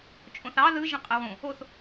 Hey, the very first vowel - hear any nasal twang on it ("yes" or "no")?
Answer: yes